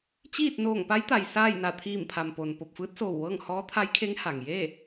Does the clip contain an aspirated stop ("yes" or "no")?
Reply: yes